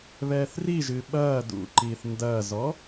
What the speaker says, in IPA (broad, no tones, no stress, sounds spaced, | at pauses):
β ɛː θ r i ʒ ɨː ɓ ɐː d ṵ ǃ iː θ n d ɐː z ɔ